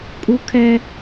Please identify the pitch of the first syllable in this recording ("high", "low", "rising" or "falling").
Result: high